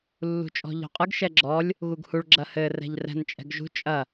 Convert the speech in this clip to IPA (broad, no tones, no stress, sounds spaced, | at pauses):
lː ṳ t͡ʃʼ ɔ̤ ʎ ɔ̤ qʼ ɯ ɡ ʃ ɛ ɡ͡ǁ ɔ lʲ | ɣ u ɡ h u ɭ ɡ͡ǁ ɐ h ɘ r ɛ̤ ʎ r ɛ̤ n t͡ʃʼ ɛ̤ ɡ ʒ ṳ t͡ʃʼ ɐ